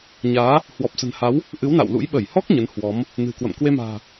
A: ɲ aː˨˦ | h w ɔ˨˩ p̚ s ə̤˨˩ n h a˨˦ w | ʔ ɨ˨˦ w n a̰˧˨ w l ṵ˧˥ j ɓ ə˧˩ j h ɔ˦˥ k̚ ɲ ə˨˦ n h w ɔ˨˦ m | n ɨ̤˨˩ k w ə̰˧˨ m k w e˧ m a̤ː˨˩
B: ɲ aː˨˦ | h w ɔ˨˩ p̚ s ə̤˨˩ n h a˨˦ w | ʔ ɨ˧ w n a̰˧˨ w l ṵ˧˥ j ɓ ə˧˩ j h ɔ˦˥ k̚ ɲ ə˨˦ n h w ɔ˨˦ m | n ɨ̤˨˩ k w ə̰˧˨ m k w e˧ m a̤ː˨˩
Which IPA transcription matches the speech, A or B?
A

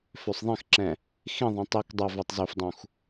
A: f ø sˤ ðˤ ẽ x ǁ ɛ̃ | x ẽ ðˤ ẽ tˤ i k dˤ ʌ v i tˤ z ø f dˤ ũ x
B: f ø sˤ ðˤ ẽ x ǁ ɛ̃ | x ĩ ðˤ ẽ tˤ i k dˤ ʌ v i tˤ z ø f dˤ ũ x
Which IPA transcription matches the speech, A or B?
B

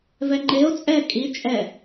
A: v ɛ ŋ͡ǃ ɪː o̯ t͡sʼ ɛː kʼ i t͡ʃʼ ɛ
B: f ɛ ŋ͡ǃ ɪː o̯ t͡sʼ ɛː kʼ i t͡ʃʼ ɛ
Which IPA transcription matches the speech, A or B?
A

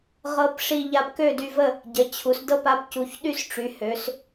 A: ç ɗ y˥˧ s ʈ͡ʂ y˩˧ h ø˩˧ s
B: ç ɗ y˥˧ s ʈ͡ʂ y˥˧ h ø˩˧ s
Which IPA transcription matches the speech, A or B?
A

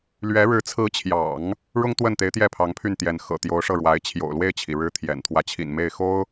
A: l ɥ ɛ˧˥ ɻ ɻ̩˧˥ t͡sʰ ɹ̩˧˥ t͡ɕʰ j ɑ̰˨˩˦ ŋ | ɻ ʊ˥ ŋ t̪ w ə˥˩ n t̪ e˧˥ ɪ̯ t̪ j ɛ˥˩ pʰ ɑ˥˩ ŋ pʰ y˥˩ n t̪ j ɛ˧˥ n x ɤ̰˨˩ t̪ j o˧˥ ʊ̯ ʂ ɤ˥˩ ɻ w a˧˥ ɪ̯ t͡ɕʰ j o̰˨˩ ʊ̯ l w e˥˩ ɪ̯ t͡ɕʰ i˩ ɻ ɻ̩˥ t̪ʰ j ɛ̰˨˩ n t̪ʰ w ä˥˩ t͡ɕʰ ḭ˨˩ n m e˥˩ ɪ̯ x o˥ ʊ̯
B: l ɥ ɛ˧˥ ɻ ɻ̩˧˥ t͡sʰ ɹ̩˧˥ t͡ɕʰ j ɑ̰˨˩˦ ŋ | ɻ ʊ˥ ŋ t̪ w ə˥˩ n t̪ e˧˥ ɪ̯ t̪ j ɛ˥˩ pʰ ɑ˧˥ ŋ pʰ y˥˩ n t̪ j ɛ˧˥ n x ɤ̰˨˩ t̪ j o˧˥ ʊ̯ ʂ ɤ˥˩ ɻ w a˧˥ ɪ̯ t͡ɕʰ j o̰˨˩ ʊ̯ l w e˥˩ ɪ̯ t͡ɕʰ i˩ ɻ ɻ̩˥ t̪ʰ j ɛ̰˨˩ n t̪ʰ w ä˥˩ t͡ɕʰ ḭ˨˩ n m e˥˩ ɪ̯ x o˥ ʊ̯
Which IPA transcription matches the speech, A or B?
B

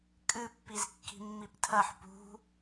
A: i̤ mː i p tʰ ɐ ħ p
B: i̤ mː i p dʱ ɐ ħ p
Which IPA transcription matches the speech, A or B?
A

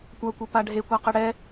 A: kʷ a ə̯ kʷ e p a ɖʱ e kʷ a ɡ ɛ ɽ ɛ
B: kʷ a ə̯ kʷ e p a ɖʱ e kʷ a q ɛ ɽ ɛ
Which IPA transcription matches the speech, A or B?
B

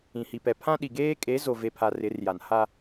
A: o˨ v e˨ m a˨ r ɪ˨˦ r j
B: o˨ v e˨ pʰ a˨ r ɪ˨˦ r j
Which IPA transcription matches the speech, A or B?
B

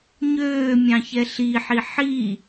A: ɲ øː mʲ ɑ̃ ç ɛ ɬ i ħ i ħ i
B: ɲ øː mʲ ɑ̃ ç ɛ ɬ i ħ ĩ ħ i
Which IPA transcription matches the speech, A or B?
A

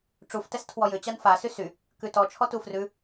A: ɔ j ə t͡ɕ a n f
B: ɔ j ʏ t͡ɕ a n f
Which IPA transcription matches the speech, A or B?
B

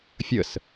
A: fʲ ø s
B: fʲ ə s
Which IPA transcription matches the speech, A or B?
B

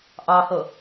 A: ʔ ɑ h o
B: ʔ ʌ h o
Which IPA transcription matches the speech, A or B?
A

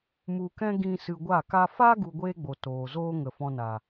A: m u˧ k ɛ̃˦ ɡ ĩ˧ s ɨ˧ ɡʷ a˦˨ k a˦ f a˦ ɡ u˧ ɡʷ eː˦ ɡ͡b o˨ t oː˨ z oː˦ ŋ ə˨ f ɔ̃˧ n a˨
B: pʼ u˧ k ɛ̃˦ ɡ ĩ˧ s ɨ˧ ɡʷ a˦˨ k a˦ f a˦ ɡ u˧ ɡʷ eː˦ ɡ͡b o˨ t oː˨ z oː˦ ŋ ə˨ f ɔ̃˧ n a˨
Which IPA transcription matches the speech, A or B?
A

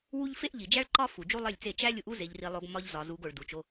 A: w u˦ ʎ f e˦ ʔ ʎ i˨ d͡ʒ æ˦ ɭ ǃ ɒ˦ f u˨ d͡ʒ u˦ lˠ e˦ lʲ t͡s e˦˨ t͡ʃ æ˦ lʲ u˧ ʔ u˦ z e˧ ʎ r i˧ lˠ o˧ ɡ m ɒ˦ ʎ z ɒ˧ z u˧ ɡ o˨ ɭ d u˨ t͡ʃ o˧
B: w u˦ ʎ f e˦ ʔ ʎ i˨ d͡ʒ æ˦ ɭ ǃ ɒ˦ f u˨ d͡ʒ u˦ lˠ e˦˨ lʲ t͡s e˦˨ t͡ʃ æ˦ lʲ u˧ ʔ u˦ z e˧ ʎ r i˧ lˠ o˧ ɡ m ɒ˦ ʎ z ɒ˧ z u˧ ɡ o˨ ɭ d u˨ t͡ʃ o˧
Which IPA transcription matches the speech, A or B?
B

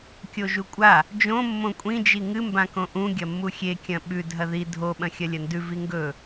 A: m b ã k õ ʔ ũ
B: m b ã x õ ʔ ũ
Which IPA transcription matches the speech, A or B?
A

